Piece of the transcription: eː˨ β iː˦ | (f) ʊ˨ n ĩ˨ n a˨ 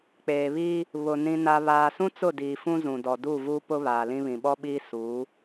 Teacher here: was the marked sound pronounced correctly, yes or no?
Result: no